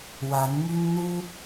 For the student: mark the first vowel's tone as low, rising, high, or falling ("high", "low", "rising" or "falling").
rising